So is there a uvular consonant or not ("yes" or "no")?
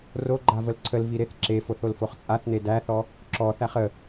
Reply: yes